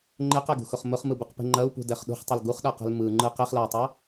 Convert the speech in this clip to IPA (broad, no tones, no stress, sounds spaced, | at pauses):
ŋ͡ǃ e q ɛ ɡ ṳ x ʊ χ m ʊ χ m ɯ b ɯ q p e̤ ŋ͡ǃ ɐ u̯ p ṳ d ɛ χ ɗ ṳ χ tˤ ʊ l ɡ u χ ɗ a q ɛ̤ l m ɯ ŋ͡ǃ ɯ q e χ l a i̯ tˤ a